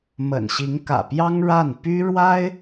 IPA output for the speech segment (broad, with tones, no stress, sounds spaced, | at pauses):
m ə̰˨˩ n ɕ i˧˥ ŋ k ä̰˨˩ p j ɑ˥ ŋ ɻ a˥˩ n p y˥ ɻ w a˥ ɪ̯